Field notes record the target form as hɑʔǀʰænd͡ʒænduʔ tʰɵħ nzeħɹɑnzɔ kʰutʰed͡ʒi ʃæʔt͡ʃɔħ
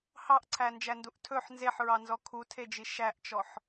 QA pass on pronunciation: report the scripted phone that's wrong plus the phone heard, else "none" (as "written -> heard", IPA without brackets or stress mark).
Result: none